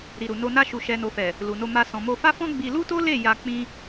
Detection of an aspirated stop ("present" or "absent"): absent